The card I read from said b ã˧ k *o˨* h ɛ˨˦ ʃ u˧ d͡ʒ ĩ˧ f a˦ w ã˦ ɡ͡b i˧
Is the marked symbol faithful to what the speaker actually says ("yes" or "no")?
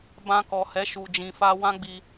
no